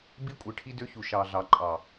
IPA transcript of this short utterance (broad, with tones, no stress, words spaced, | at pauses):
bi˦kʷʼɯ˨ ʈʰi˦dø˦çu˨ ʃɑ˨ ɮɑ˨ǃʼɑ˨